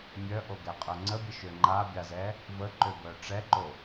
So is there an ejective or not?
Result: yes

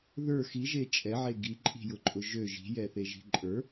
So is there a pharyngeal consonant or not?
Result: yes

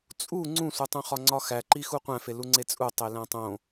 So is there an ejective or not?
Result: yes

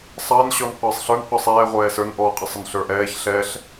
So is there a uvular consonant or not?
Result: yes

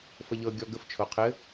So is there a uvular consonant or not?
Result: yes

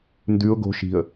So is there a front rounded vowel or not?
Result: no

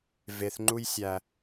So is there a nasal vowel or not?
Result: no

